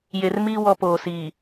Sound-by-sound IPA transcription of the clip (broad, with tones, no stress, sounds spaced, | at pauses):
j e˨ r m iː˦ w ɔ˦ p oː˨ s iː˨